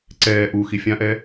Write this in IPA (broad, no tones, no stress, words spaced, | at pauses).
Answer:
ǀɛː ʔu xifʲãʔɛ